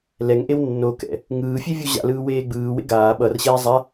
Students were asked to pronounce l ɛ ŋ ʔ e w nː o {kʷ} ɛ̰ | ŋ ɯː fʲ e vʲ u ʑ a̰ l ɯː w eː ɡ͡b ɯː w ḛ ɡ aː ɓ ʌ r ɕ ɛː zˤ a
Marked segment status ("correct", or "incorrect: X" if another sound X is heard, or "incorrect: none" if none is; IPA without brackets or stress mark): incorrect: k